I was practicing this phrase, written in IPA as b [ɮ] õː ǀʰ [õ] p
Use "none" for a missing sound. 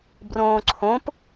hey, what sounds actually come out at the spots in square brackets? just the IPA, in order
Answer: r, õ

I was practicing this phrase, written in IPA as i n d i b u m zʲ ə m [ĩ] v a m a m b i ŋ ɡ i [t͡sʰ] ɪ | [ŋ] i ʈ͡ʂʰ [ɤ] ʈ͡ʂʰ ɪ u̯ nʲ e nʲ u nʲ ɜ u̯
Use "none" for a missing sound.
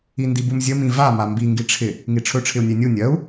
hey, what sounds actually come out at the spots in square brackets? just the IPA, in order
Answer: ĩ, ʈ͡ʂʰ, ŋ, ɵ

